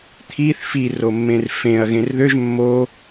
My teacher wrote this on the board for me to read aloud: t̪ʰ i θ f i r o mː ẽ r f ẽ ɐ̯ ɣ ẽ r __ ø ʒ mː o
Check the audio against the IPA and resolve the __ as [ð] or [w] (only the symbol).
ð